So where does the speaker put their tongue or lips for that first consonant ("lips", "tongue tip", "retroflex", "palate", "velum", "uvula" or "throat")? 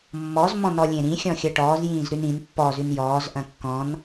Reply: lips